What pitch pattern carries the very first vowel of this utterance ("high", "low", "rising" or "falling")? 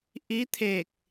rising